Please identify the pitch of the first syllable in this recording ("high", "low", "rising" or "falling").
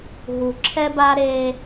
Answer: low